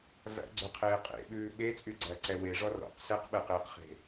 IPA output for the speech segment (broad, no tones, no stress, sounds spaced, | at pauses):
v æ̰ ɡ͡ǀ ø qʰ eː qʼ ḛ ɓ ʉː ɓ e t͡sʼ y ɡ͡ǀ æ ǀ ɛ w e ʐ ɔ r ɔ̰ q s ɛ q ɓ ɛ q eː q χ e̤